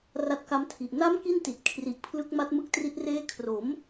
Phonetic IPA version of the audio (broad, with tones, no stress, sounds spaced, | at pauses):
r a˦˥ t̚ k a˦˥ m tʰ i˨˩ ʔ n a˦˥ m k i˥˩ n t i˨˩ t̚ kʰ r i˨˩ ʔ pʰ l ɯ˦˥ k̚ m a˦˥ t̚ m ɯ˦˥ k̚ t r i˦˥ t̚ r eː˦˥ kʰ r o˩˦ m